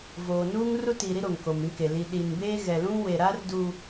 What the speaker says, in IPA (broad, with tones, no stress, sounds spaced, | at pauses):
v oː˨ n uː˦ ŋ r u˦ t iː˨ ɾ i˦ ɾ o˨ ŋ k o˨ m ĩ˦ k e˨ l i˨ ɗ i˨ n b eː˦ ɣ ɛ˨ l ũ˦ w e˨ ɾ aː˦ r d u˨